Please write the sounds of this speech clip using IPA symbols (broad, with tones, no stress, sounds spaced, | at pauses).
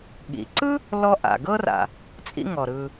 ɠ ḭ˩ ǀ ɯ˥ | l ɔ˧ ʔ a̰˩ ɡ ɤ˧ r a̰˩ | t͡sʼ ḭ˧ ŋ ɔ˩ ɾ ɯ˩